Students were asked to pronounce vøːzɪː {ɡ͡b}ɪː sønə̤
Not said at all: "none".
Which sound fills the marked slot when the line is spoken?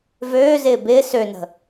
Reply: b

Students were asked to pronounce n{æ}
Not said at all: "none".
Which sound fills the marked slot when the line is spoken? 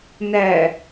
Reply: æ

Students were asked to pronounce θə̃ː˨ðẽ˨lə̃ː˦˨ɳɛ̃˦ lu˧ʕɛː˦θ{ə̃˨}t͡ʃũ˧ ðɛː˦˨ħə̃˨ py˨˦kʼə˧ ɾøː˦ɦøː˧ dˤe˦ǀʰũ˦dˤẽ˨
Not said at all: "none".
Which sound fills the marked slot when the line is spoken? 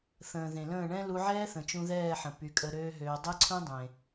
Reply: ə̃˨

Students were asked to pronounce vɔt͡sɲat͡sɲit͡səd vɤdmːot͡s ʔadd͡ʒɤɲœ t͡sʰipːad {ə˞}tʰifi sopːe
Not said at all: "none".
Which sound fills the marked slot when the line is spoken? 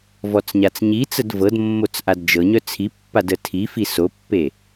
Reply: ə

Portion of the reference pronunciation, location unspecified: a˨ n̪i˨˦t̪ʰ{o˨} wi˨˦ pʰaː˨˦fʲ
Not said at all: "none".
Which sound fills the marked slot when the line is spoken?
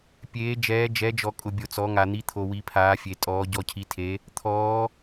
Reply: o˨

